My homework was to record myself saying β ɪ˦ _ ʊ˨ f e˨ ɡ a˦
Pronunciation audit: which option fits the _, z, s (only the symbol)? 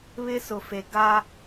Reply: s